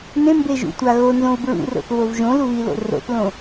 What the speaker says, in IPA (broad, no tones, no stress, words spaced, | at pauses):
nẽmbeʒṵtʷa ɣonzõu̯ bɹṵro̰θβov ʒõluβilo̰ ro̰θlõ